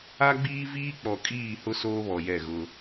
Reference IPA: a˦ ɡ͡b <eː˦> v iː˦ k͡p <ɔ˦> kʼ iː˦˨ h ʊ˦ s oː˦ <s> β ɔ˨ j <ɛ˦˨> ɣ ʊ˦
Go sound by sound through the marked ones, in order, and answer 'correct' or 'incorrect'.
incorrect, incorrect, incorrect, correct

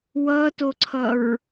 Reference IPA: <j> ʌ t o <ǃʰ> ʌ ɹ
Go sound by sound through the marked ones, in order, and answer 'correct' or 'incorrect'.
incorrect, incorrect

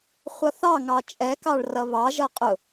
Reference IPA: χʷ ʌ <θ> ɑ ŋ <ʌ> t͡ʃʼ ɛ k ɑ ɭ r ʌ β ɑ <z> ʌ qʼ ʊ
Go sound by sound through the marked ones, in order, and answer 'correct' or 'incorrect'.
correct, incorrect, incorrect

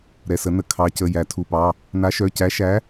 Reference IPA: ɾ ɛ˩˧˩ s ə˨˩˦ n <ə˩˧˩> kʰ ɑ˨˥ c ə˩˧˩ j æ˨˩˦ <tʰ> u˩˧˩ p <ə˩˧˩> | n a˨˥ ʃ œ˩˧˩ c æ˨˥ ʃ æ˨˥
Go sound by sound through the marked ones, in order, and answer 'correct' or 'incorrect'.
correct, correct, incorrect

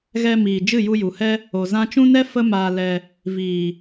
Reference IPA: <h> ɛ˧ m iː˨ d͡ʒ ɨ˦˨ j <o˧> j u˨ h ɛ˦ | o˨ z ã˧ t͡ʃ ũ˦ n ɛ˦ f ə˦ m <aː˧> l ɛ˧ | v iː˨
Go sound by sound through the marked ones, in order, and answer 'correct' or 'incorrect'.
incorrect, incorrect, correct

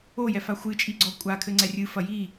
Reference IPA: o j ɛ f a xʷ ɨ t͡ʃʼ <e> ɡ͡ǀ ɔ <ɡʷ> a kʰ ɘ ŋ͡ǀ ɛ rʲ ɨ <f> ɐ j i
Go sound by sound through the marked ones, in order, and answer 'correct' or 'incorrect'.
incorrect, incorrect, correct

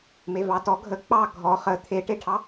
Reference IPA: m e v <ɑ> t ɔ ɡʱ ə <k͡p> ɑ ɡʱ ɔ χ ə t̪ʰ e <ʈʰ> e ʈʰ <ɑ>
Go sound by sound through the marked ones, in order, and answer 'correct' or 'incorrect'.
correct, correct, incorrect, correct

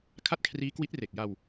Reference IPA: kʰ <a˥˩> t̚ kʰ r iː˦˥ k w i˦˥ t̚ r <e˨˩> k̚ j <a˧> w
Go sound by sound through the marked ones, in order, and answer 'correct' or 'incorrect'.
correct, correct, correct

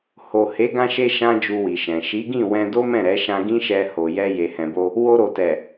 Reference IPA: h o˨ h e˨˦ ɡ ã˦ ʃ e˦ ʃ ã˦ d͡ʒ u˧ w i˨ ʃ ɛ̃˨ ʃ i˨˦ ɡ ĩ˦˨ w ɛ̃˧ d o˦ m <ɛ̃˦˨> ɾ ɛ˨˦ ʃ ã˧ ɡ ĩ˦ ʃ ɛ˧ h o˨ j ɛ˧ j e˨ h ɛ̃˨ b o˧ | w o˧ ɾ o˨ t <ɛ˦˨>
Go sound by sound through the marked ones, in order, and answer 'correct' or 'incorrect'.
correct, incorrect

